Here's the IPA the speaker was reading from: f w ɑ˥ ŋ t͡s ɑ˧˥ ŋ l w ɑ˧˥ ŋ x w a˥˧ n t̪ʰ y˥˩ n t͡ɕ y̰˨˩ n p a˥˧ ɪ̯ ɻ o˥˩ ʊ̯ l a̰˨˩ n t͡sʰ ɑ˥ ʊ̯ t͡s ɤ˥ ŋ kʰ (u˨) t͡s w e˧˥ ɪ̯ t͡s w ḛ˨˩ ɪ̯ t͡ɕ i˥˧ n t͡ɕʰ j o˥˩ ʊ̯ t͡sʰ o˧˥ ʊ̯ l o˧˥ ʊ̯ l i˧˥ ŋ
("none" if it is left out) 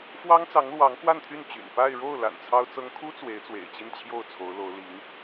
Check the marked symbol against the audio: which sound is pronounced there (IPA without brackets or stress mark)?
u˥